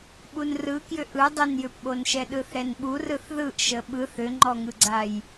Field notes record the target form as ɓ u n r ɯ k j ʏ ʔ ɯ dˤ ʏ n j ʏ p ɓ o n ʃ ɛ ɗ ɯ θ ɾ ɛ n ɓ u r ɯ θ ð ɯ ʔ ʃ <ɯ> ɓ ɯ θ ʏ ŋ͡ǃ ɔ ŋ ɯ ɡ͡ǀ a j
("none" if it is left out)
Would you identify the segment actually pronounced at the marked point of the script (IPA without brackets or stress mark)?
ə